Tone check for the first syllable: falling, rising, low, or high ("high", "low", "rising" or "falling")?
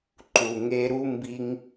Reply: low